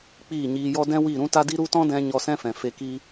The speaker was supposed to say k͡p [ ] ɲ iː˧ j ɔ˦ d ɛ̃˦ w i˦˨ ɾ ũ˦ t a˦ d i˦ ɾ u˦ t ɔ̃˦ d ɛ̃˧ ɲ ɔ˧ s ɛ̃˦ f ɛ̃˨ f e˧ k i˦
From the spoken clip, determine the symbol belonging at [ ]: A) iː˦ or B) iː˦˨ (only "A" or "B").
B